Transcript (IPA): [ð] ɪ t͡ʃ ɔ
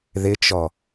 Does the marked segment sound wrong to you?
no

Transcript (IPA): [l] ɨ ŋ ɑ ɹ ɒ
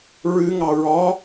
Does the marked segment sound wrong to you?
yes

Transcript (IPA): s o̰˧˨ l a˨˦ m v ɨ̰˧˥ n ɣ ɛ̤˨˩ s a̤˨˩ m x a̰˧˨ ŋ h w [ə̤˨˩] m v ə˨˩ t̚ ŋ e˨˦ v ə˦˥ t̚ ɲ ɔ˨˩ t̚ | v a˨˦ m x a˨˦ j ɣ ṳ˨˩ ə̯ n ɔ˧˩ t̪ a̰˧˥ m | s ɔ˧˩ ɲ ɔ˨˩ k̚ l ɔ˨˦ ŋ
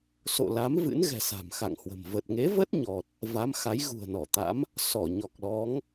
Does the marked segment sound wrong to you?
no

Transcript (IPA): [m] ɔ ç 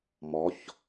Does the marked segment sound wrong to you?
no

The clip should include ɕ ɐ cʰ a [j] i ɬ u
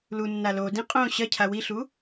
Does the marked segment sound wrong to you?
yes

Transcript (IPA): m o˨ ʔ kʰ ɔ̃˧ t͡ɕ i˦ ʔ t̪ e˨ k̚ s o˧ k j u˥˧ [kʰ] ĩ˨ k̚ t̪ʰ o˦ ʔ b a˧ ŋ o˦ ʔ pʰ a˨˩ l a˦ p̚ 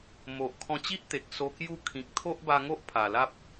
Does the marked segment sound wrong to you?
no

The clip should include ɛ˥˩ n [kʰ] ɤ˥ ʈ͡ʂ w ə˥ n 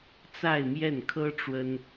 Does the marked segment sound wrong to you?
no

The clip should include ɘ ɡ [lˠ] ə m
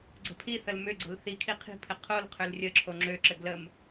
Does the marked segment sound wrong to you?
yes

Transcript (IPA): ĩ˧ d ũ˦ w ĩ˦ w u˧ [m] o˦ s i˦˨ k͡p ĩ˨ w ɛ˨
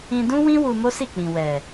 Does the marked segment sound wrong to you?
no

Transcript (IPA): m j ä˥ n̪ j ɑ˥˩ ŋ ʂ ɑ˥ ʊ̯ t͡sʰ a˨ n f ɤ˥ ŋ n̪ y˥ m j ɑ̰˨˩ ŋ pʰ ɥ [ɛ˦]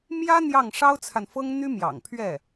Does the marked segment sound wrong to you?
yes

